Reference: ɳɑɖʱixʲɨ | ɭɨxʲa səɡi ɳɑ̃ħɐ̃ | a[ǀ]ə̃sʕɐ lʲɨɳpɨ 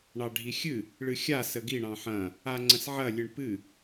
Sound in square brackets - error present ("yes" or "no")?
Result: yes